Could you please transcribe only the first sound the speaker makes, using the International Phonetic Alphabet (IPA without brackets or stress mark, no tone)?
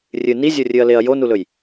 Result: rʲ